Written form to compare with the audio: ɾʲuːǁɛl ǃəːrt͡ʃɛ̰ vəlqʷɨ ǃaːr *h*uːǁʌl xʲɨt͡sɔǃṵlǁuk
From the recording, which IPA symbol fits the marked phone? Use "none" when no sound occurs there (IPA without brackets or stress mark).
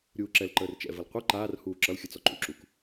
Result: h